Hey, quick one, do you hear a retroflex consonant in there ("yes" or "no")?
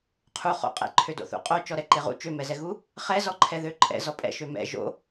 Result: no